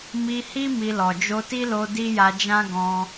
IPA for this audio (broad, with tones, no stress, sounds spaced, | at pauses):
m i˧ h i˦ m i˧ l ɔ˨ d͡ʒ o˧ t i˦ l o˧ d i˦ j a˧ d͡ʒ ã˦ ɡ ɔ̃˧